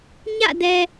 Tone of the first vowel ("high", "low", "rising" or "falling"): falling